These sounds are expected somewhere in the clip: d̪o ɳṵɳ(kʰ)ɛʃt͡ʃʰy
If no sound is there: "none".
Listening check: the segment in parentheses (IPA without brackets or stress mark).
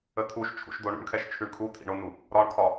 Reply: kʰ